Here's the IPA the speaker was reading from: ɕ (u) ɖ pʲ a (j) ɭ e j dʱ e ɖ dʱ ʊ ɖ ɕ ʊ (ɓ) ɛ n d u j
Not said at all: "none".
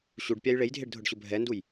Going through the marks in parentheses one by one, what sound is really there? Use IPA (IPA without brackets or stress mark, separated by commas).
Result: u, j, bʱ